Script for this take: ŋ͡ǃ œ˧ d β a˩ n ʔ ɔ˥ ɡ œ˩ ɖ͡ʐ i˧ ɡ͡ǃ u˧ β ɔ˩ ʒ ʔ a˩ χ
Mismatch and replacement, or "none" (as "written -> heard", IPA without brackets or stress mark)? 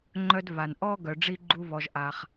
none